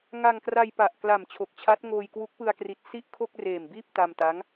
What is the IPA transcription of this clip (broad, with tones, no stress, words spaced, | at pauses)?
ŋa˧ŋkra˧jpa˨˩ʔkla˨˩m t͡ɕʰo˨˩k̚t͡ɕʰa˦˥t̚ŋoː˧j kwu˦˥k̚pɯ˧a̯kri˨˩t̚ si˥˩ʔkʰo˥˩k̚reː˨˩mbiː˥˩p̚ ta˧mta˦˥ŋ